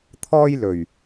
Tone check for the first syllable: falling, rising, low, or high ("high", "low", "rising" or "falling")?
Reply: high